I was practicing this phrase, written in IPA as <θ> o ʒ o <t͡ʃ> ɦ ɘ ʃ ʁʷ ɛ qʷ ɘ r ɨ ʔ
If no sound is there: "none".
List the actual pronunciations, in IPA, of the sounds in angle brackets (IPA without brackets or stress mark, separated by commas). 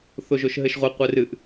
θ, ʃ